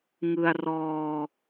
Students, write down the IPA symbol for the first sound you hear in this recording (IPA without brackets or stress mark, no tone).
ŋ